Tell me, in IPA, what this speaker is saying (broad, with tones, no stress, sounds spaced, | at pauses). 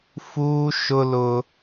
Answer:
f uː˦ ʃ ʊ˦ l ʊ˦